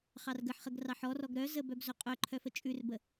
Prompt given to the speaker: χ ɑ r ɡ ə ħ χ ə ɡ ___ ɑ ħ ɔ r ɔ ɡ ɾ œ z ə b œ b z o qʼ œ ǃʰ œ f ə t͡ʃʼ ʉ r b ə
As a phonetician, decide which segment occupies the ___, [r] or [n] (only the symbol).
r